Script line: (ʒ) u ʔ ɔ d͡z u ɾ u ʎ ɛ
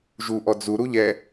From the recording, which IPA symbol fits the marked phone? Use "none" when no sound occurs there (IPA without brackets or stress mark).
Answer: ʒ